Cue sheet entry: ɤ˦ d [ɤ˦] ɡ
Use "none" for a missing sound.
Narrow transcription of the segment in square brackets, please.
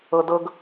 ɤ˦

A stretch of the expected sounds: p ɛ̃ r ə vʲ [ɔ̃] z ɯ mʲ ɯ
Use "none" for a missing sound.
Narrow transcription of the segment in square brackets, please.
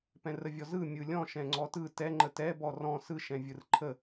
ɔ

